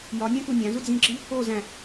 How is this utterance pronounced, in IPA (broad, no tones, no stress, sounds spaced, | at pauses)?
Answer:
j ɒ nʲ æ̃ k u nʲ æ̃ z u d͡z ĩ ǁ i | o z æ̃